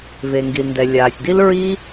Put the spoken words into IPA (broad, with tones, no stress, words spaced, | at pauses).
ve˨ŋɡi˨lndɛ˨ lʲaː˨sʲdi˦l ɹi˦